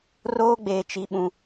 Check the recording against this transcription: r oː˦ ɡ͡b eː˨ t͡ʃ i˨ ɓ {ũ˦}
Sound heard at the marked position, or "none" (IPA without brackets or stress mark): ũ˨